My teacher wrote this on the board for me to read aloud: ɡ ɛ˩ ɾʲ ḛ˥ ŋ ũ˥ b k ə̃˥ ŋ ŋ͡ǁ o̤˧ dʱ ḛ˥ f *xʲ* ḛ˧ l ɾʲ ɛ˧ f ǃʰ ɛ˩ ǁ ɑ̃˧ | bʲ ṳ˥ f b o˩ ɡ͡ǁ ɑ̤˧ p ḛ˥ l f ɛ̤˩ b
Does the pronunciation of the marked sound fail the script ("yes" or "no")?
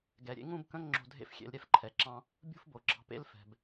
no